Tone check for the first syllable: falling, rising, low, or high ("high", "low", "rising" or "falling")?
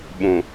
low